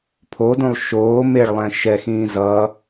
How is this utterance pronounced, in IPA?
pʰodũlˠ ʃoː meɭlˠɛ̃ ʃɛxĩː zʌ

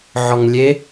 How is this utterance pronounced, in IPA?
ʕɔŋlʲe

